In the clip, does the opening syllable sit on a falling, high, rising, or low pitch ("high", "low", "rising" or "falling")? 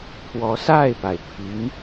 rising